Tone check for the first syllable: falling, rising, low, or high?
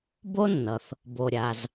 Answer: high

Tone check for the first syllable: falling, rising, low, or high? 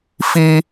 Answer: high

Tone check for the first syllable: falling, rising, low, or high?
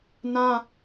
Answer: high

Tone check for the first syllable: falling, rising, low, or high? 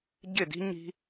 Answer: falling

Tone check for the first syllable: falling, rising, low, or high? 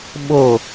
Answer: falling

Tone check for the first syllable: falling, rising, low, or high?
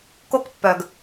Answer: high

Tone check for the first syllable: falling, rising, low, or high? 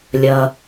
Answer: low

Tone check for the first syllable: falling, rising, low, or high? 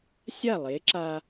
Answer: falling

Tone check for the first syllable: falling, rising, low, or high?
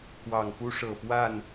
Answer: low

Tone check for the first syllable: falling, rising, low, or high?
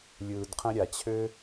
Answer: low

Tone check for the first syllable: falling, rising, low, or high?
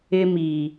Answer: high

